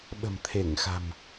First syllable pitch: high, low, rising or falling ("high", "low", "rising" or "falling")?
low